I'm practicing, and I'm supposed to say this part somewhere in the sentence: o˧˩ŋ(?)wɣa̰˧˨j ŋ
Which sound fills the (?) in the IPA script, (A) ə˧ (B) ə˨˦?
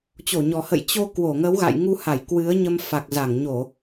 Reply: B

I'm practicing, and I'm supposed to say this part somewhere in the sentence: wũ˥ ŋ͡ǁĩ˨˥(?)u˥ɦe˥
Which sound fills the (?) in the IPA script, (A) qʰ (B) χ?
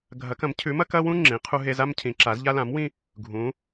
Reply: A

